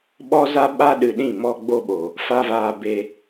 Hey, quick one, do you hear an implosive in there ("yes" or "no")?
yes